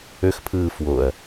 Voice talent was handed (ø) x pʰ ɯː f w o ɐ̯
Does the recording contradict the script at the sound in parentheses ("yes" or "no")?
no